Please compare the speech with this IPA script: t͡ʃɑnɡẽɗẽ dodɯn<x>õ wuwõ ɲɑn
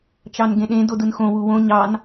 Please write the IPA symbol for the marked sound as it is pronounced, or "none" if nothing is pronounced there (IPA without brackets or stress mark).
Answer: x